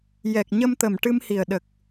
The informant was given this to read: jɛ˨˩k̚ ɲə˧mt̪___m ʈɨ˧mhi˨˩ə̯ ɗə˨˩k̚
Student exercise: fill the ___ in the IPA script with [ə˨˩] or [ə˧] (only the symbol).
ə˨˩